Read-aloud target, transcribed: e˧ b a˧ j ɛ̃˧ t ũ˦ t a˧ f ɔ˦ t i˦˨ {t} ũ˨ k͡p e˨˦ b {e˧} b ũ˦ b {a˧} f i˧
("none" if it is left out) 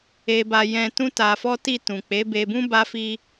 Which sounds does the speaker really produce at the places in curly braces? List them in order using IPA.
t, e˧, a˧

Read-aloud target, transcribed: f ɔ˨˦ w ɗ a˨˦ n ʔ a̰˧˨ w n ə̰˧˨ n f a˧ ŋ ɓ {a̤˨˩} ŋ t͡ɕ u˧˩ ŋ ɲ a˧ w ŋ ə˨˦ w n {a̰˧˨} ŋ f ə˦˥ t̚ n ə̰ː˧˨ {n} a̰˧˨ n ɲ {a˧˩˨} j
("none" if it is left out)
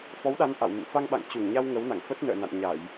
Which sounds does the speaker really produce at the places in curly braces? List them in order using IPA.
a̰˧˨, a̰˧˨, n, a˧˩˨

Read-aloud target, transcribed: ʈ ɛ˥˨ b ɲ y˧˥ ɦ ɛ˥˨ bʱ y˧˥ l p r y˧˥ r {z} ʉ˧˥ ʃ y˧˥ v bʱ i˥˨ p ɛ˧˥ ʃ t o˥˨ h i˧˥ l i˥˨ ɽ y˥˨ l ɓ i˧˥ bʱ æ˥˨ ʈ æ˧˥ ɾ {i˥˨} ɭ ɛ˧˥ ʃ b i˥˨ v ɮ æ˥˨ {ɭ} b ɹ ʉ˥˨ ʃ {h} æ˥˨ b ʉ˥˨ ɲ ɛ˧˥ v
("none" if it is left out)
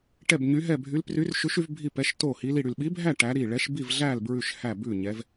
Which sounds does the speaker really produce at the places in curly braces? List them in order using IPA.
ʃ, i˥˨, l, h

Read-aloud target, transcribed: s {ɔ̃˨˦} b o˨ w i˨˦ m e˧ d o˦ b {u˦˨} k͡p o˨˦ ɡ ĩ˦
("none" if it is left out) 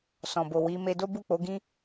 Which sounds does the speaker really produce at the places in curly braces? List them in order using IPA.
ɔ̃˨, u˦˨

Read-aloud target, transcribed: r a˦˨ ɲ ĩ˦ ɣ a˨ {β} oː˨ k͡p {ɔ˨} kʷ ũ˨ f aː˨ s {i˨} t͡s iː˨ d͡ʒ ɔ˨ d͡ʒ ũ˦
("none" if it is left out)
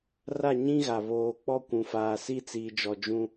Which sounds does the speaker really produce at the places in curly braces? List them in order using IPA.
β, ɔ˦˨, i˦

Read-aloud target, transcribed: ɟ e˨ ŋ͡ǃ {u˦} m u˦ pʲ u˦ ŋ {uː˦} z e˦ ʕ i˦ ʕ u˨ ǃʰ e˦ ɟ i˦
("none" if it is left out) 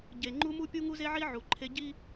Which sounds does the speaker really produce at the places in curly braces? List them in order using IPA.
u˦, u˦

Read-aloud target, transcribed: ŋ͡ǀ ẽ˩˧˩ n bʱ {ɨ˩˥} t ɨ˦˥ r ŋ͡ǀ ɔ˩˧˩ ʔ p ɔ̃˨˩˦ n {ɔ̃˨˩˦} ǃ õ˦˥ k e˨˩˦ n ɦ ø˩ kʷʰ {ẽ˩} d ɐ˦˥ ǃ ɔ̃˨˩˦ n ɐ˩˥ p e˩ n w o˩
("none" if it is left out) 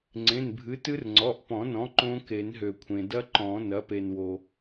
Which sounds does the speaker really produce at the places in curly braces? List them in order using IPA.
ɨ˩˥, ɔ̃˩˥, ẽ˩

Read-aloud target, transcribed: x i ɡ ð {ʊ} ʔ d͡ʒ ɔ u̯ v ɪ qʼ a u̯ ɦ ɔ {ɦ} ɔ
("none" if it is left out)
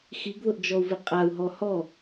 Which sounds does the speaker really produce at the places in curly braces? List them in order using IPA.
ʊ, h

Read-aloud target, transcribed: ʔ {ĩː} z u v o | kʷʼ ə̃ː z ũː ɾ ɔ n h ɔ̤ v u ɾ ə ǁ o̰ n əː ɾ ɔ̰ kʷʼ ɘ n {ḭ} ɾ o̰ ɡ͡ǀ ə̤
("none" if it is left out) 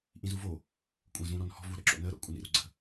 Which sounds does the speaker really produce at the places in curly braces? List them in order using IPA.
ĩ, ḭ

